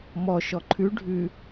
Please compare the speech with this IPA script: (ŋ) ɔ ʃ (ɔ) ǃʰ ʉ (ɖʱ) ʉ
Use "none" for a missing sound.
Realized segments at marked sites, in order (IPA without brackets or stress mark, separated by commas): m, ɔ, ɖʱ